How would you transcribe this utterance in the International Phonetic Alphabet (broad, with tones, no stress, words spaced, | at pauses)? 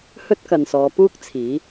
hɵ˥t̚kɐ˨nsɔː˨˧puː˥k̚ t͡sʰiː˨˥